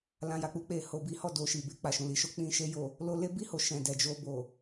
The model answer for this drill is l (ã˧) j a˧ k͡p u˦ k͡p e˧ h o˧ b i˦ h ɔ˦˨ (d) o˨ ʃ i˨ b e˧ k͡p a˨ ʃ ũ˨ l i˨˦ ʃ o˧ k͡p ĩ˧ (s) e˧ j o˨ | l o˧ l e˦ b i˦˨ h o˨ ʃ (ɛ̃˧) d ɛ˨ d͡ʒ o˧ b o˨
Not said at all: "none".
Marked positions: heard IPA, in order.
ã˧, d, ʃ, ɛ̃˨

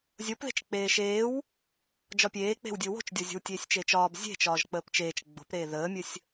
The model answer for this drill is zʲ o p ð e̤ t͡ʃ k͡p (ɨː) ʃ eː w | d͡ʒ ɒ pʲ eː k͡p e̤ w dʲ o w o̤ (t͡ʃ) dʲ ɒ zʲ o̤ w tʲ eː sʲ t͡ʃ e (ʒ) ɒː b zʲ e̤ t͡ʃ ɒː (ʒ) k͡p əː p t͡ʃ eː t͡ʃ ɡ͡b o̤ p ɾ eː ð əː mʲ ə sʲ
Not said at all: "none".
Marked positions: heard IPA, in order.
eː, t͡ʃ, t͡ʃ, ʒ

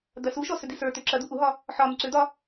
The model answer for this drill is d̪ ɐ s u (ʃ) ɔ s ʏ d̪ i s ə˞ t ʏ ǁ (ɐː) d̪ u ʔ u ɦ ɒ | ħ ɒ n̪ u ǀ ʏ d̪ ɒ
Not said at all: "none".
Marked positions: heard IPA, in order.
ʃ, ɐ

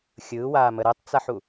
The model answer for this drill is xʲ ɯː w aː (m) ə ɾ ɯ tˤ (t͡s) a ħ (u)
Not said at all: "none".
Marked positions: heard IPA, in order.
m, t͡s, u

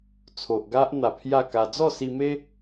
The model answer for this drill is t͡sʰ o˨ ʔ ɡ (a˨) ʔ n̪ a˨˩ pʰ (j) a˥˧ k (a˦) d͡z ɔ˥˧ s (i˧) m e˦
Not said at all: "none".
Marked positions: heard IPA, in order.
a˦, j, a˧, i˧

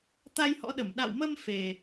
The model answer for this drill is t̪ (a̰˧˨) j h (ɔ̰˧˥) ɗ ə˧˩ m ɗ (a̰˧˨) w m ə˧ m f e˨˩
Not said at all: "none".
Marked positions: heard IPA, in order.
a˧, ɔ̰˧˥, a̰˧˨

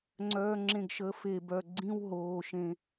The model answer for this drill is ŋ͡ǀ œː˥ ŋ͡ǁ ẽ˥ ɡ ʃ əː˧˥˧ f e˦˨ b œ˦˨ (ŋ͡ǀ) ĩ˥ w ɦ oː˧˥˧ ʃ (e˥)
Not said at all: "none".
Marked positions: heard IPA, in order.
ɡ͡ǀ, ẽ˥

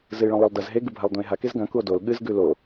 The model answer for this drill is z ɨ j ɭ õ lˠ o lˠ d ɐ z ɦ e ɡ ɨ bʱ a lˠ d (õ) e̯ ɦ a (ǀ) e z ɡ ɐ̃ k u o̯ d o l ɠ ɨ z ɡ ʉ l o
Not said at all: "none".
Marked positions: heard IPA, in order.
õ, k

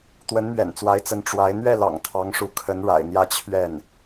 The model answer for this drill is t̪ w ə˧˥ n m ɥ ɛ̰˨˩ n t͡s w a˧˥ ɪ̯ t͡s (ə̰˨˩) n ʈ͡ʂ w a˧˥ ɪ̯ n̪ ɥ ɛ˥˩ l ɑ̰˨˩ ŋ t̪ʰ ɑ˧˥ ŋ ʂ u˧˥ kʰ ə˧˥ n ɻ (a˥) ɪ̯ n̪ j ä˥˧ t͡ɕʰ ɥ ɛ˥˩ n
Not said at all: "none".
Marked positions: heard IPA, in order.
ə˧˥, a̰˨˩

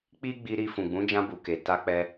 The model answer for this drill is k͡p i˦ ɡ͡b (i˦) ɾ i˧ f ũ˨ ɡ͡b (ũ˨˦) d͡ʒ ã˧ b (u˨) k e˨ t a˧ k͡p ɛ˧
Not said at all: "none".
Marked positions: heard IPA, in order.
i˧, ũ˨˦, u˨

